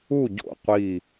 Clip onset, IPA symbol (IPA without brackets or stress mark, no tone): u